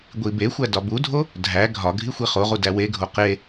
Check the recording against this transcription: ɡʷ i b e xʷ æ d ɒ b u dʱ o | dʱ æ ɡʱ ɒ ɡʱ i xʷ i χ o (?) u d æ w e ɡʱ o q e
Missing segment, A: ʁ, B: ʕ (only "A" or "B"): A